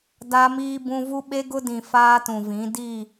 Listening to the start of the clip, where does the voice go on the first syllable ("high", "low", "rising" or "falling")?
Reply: high